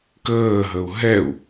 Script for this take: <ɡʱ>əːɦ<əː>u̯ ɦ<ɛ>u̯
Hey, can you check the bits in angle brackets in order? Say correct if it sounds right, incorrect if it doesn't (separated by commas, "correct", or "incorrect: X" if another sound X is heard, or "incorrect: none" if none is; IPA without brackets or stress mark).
incorrect: k, incorrect: ə, correct